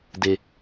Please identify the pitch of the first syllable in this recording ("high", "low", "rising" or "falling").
high